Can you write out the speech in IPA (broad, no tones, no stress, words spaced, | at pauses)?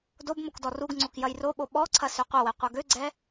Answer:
dob mokdɔruɡŋ͡ǀok jɐjroɓo ɓɔǀʰɐ søqʷɐwɛ qʷɐɡøɡ͡ǀɛ